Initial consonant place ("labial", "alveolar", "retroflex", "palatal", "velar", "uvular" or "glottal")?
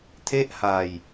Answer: alveolar